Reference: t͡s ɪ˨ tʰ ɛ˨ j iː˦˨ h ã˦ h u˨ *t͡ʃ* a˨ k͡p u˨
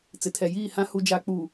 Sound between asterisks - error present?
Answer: yes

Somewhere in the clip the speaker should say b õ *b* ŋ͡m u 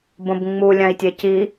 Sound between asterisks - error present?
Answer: no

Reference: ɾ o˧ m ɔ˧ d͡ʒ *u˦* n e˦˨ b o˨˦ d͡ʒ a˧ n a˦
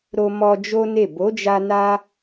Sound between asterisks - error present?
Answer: yes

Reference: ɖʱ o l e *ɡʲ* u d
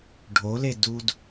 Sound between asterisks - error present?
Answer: yes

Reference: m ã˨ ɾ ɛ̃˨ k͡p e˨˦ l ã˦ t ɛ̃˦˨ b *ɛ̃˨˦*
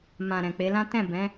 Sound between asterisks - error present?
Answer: no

